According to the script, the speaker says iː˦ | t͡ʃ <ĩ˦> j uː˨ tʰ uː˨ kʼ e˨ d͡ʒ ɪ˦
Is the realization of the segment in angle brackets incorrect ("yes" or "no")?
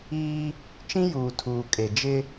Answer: no